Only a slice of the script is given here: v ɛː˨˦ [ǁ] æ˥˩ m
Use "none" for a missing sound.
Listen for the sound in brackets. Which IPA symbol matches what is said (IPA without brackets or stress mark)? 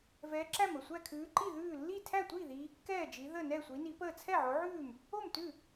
ǁ